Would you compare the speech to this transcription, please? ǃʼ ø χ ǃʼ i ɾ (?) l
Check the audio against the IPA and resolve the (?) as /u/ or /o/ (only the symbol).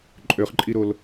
o